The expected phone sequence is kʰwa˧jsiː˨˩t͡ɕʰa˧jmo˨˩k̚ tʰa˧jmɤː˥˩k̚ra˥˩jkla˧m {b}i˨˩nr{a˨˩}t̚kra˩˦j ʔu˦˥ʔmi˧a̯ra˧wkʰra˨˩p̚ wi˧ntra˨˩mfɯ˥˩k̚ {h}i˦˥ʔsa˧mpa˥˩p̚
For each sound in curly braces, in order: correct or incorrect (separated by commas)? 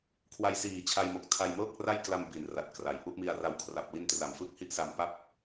correct, correct, correct